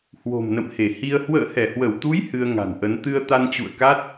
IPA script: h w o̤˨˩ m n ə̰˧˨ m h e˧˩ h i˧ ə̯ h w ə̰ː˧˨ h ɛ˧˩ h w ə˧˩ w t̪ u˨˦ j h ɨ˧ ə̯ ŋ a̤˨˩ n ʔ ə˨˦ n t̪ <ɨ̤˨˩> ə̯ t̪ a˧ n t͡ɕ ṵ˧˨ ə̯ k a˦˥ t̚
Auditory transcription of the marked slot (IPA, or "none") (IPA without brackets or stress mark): ɨ˧